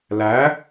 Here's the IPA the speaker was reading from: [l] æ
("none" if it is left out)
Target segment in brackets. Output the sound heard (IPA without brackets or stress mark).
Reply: l